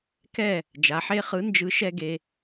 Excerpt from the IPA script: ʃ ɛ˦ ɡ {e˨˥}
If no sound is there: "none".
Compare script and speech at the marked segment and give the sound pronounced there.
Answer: e˩˧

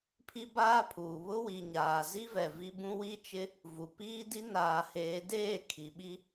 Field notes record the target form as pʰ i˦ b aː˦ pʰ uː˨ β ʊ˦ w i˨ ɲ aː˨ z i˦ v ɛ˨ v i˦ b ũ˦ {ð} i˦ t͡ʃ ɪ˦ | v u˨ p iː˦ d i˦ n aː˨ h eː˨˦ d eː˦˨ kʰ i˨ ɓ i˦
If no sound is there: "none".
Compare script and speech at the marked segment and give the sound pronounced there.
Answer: w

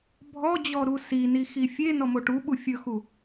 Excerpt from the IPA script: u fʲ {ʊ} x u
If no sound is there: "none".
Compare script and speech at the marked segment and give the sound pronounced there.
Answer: ɵ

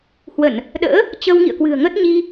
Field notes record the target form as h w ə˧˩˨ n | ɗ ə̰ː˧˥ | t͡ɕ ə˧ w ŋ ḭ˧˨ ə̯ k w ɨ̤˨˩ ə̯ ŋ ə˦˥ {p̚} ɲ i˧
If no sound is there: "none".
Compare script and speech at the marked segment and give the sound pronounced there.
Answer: t̚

